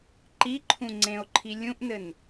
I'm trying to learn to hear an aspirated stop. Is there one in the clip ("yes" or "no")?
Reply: yes